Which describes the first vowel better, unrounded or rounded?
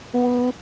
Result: rounded